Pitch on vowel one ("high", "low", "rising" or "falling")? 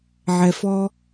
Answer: low